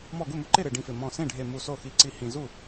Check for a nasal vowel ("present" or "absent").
present